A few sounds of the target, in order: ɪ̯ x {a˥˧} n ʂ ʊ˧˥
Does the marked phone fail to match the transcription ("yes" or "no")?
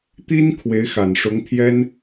yes